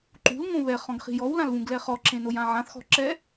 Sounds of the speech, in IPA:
ǃṳl ŋõβɛ χɔ̃ɡχi̤jɔw lãlβũɡlɛχɔ ǁẽnojãʕãθ xɔ̤ǁɛ

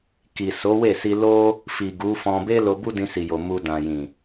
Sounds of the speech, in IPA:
ki˨so˨˦we˦˨si˧ lo˧ | fi˨ɡu˨˦fɔ̃˧ be˦lo˧ bu˦dĩ˧si˨jo˨ mu˧dã˨jĩ˨

